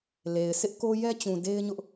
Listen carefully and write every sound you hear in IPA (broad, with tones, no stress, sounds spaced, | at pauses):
l e˨ ɪ̯ sʰ ɪ˦ ʔ k o˦ j ɛ˦ t͡ɕ ũ˨ d e˦ ɪ̯ ɲ ʊ˦ ʔ